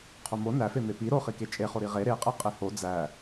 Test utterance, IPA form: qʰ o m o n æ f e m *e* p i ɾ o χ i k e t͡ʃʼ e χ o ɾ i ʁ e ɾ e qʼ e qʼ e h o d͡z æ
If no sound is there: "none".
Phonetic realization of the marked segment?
e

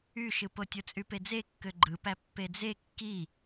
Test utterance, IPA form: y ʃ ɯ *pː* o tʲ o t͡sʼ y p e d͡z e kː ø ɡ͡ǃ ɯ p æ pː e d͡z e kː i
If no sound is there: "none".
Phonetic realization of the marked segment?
p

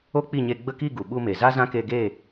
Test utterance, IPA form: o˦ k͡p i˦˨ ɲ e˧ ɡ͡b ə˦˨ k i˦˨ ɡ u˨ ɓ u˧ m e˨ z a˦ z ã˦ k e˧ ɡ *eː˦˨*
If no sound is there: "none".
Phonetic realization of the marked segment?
eː˦˨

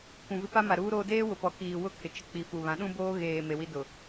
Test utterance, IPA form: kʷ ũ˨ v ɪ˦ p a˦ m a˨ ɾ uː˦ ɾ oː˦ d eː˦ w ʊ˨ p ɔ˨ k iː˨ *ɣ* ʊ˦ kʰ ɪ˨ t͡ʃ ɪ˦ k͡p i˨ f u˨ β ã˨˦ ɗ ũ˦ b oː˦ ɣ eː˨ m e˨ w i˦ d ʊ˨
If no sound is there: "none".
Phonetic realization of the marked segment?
w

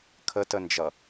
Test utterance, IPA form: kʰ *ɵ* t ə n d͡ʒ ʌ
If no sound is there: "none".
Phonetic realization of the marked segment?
ə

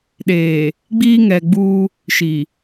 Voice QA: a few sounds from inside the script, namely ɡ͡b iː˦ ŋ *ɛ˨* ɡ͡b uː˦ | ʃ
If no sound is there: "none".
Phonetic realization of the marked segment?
ɛ˨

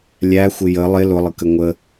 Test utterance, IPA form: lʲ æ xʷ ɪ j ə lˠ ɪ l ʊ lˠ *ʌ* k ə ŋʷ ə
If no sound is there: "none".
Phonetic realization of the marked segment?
ə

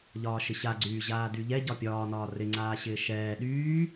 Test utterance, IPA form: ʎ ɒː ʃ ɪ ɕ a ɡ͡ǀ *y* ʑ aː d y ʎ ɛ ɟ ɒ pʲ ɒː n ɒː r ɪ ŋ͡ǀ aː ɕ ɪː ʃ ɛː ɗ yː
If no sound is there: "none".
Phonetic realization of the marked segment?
yː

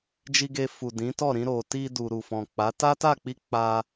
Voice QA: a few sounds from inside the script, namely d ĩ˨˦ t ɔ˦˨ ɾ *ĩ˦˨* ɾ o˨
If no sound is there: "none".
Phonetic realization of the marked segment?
ĩ˧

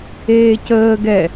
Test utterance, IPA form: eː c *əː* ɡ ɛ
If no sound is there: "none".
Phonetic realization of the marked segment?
əː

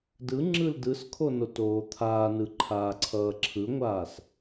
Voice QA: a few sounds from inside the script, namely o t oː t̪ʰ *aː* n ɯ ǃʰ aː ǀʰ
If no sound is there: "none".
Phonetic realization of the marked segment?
aː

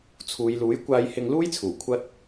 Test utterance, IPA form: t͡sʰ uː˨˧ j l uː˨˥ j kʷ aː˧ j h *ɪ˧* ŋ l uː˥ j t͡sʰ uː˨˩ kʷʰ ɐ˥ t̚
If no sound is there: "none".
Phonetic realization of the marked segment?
ɪ˧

